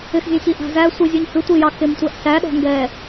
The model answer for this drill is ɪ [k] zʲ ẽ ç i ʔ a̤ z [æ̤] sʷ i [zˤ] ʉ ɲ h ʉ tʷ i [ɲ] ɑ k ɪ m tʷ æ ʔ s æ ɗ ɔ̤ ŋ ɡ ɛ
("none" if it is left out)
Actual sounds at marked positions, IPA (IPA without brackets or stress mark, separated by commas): x, æ, zʲ, j